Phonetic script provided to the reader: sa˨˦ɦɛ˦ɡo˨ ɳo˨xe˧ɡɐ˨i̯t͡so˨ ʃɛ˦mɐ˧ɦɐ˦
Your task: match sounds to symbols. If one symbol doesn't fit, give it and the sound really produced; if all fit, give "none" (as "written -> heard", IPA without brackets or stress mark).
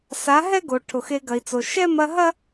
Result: ɳ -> ʈʰ